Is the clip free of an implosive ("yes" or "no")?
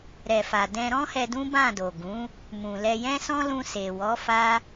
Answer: yes